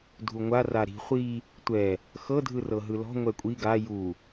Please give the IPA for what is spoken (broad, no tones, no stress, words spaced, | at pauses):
dʱuŋʷa raɾi̤ χʷi | tʷɛ | xɤ dʱɯrɤɦɯlɔ̤ ŋʷɛkʷʼi ɡa ju